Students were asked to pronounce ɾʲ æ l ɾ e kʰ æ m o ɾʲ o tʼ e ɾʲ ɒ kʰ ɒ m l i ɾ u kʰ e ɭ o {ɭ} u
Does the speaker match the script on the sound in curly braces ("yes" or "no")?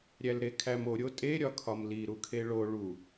yes